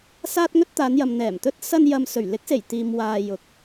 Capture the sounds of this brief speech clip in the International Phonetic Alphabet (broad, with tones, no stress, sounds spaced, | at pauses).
s aː˥ t̚ ŋ ɵ˥ t̚ t̪ aː˨˧ n j ɐ˨ m n̪ ɛː˨˩ m t̪ ɵ˥ t̚ s ɐ˧ n j ɐ˨ m s ɵ˨˩ ɥ l ɪ˨˥ k̚ s e˨˩ j t̪ iː˨ m w aː˨ j ʊ˨ k̚